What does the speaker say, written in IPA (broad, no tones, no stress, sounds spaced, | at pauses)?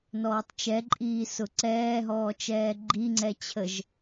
n ɔː tˤ t͡ʃ ɛ ǃʼ iː s ʊ ǀ ɛː ɦ ɔː t͡ʃ ɛː ɡ͡ǃ i ŋ͡ǀ ɛ t͡ɕʰ ə ʒ